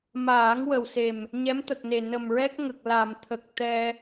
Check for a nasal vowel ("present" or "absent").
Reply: absent